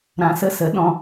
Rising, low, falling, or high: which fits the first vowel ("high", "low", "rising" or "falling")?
low